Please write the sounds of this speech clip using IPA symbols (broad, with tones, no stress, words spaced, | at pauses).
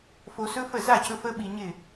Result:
fo˧sɵ˦fə˦˨ za˦˨cɵ˧ fə˦ ɓi˧ɲɪ˦˨